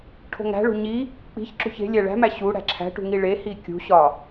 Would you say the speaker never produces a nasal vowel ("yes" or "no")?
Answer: yes